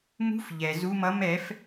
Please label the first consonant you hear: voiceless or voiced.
voiced